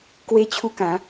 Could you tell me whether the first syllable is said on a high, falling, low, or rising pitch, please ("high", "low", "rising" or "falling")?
high